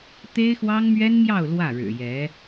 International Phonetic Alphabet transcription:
t̪e˥ɪ̯xwɑ˥ŋmɥɛ˥nmjɑ˥˧ʊ̯ lwä˥˩ɻɻ̩˨˩jɛ˧˥

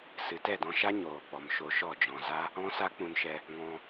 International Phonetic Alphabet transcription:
sɨ˨tɛ˦˨dɔ̃˧ʃa˦ ɲoː˨k͡pɔ˨m ʃo˧ʃɔ˦˨d͡ʒɔ̃˧ za˦ | ɔ̃˦sa˦k͡pũ˧nʃɛ˧ | ŋɔ̃˧

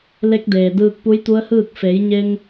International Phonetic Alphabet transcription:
le˧˥k̚deː˩ dɯː˧k̚pu˧˥jt̪u˧˥ə̯hɯː˥˨k̚ fe˩˧jɲe˧ŋ

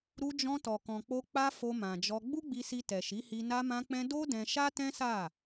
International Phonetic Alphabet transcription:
ɾu˧d͡ʒɔ̃˧tɔ˨ kɔ̃˨k͡po˧ k͡pa˦fo˧mã˨d͡ʒɔ˧ ɡ͡bu˦ɡ͡bi˧si˧ tɛ˨ʃi˨˦hi˧ na˧mã˧k͡pɛ̃˧ do˦ dɛ̃˧ ʃa˦tɛ̃˦sa˦˨

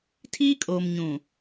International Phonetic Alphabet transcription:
tʰiː˦kʼoː˨m ɲũ˨

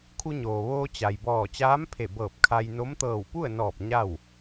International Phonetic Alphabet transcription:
kʰu˧ɲoː˩ʋoː˧ t͡ɕa˩jbɔː˧˩ t͡ɕaː˧˥mpʰe˧˩bɤː˧˩p̚ kʰa˧jno˧˥m t̪ɤː˧˩wpu˥˨ə̯nɔː˧˩p̚ ɲa˥˨w

